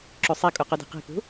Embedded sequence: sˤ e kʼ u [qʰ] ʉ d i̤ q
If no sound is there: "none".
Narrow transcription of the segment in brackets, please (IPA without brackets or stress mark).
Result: q